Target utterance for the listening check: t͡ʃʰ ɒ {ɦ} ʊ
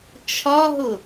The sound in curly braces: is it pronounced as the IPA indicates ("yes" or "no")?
yes